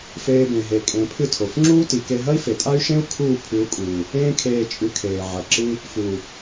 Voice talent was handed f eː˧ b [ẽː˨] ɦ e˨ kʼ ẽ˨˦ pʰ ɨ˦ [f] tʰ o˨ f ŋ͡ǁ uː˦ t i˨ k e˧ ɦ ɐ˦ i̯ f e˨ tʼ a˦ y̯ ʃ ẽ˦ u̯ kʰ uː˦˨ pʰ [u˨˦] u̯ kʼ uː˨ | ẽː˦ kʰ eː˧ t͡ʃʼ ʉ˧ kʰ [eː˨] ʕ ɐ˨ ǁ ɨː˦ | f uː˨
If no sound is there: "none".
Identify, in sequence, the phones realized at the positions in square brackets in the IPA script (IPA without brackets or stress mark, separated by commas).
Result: ẽ˨, none, ʉ˨˦, eː˨